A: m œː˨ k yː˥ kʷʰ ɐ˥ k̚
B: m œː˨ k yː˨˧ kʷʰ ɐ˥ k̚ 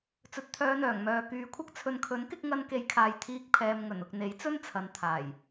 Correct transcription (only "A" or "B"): B